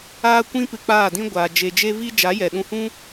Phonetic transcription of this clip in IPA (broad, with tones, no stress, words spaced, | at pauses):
aː˦ kʷĩ˦pɨ˧k͡paː˦˨dĩ˦ ɡʷaː˧ d͡ʒe˧d͡ʒe˦ viː˦ d͡ʒa˨˦jɛ˨ɗũ˧hũ˦